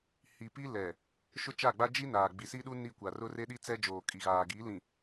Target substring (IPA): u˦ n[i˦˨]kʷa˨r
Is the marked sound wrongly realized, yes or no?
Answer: no